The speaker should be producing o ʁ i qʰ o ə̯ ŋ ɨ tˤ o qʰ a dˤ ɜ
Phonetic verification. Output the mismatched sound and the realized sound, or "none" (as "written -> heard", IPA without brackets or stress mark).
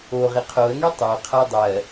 ɨ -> i